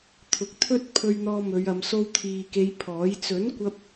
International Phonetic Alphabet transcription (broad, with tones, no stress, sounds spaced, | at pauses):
t̪ʰ ʊ˨ k̚ t̪ʰ ɵ˥ t̚ pʰ ɵ˧ ɥ n̪ ɔː˧ m ɵ˨˧ ɥ ɐ˨˧ m s o˧ w t̪ʰ iː˨ k e˨˧ j pʰ ɔː˨˥ j t͡s ɵ˨˥ n kʷ ɐ˧ p̚